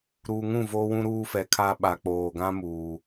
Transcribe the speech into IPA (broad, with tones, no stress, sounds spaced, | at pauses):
ɾ uː˨ ŋ ũ˦˨ v oː˦ w ũ˦ ɾ uː˦ f ɛ˨ kʰ aː˦ ɓ a˨ k͡p oː˨ ɡ ã˦ m uː˨